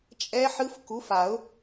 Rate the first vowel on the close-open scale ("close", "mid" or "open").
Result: mid